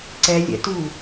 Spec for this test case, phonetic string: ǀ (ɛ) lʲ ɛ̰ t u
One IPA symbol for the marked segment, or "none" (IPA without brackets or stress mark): ɛ